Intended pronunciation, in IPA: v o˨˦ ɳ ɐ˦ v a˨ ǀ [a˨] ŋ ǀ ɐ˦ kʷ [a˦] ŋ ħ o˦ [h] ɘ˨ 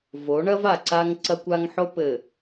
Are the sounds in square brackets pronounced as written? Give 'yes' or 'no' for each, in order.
no, yes, no

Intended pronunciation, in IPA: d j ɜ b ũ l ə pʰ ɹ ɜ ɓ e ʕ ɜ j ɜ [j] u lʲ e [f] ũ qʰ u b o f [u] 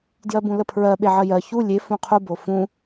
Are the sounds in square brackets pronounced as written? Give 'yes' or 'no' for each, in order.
no, yes, no

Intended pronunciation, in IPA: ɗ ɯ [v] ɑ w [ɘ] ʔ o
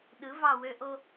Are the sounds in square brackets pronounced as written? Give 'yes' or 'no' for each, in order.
yes, no

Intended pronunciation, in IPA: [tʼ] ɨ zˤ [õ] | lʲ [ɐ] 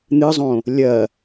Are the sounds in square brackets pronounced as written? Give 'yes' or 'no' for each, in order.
no, yes, yes

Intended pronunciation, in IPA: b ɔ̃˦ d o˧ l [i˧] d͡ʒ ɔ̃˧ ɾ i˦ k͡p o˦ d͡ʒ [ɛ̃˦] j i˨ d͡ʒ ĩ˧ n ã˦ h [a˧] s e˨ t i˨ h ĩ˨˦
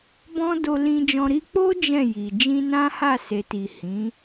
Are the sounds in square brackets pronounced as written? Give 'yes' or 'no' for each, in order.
no, no, no

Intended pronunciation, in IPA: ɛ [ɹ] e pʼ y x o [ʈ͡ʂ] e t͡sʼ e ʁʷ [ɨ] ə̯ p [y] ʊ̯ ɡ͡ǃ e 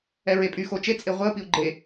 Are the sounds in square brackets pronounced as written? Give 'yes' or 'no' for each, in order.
yes, no, no, no

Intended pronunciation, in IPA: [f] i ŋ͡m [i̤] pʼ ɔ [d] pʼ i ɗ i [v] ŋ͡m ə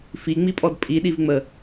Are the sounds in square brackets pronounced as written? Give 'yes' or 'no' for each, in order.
yes, no, yes, yes

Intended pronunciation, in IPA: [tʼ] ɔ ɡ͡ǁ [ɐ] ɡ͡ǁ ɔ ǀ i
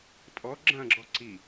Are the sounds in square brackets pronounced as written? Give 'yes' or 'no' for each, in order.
yes, no

